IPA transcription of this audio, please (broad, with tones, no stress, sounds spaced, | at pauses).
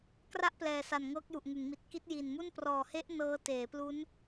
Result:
k r a˥˩ ʔ p l ɛː˨˩ s a˨˩ n ŋ ɤː˦˥ k̚ j u˨˩ ʔ ŋ ɯ˩˦ ŋ m i˨˩ t̚ k i˦˥ t̚ j i˨˩ n m u˥˩ n p r ɔː˨˩ h e˦˥ ʔ n ɤː˦˥ t eː˩˦ p l u˦˥ n